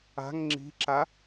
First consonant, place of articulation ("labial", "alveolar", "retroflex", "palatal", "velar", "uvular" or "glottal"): velar